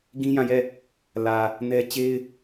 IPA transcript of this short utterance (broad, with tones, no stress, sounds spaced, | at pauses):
ɡ ĩ˦ j ã˦˨ j ɛ˦˨ | l ä˨ | n ɛ˦ t͡ɕ e˦ ɪ̯